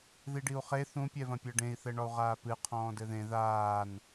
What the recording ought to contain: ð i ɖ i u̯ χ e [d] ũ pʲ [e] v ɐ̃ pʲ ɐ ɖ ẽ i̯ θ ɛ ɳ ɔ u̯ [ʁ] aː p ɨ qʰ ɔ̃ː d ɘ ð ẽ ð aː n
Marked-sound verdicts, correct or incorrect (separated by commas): incorrect, incorrect, correct